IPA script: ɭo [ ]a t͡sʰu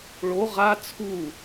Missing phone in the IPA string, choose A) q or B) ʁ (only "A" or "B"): B